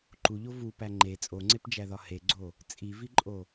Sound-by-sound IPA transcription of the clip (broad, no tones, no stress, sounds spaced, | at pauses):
ǃ u ʎ o v u p æ ŋ͡ǃ e t͡sʼ o ŋ͡ǀ e p d͡ʒ æ ð ɒ h e ɡ͡ǀ o | t͡sʼ i v i ǃʼ o